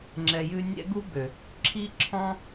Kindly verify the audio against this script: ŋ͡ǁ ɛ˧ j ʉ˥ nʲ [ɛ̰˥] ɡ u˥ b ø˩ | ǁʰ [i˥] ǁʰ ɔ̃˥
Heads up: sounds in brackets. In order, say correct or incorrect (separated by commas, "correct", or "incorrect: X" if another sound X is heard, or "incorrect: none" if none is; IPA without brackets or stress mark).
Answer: correct, correct